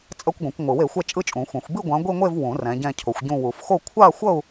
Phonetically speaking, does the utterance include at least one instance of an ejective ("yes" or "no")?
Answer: yes